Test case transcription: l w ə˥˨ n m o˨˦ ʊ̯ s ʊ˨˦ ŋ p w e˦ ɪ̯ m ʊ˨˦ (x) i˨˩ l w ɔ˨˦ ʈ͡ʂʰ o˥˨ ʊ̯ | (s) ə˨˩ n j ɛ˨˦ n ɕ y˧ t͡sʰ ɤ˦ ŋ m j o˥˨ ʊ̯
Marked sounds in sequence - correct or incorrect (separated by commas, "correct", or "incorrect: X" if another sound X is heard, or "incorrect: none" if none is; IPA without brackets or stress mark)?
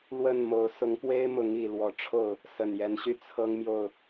incorrect: ŋ, correct